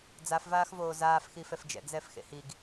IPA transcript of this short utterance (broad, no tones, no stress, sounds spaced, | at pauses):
d͡z a f v aː x v oː z aː f x i f ɛ f d͡ʒ ɛ̰ ɡ z ɛ f x ḛ h i ɡ